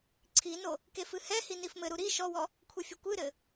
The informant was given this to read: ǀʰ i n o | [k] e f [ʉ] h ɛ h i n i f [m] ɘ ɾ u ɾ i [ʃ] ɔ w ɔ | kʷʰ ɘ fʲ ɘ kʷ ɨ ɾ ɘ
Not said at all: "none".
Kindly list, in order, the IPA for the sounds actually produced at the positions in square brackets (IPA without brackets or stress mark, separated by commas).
k, ɨ, m, ʃ